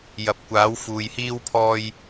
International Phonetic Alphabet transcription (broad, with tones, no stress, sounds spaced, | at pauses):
j ɐ˨ p̚ kʷ aː˨˥ w f uː˧ j h iː˥ w pʰ ɔː˥ j